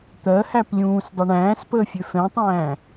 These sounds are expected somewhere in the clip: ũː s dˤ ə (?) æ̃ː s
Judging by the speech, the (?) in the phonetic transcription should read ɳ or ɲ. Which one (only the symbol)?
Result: ɳ